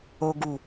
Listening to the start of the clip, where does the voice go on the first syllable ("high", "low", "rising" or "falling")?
high